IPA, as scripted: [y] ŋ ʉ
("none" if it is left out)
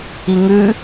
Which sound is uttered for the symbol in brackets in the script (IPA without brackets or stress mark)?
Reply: i